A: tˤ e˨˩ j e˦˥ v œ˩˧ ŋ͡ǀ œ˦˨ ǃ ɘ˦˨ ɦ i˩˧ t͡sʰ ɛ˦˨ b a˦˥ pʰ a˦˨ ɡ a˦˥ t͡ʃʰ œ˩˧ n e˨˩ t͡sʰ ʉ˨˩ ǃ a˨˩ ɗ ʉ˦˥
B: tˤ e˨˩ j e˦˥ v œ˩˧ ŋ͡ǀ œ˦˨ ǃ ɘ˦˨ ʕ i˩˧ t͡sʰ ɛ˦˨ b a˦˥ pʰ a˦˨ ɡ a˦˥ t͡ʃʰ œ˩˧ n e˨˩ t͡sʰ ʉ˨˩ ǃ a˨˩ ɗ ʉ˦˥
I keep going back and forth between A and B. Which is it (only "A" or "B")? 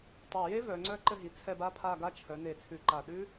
A